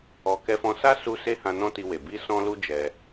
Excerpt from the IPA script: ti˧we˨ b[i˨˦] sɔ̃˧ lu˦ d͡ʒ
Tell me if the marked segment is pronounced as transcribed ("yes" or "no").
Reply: no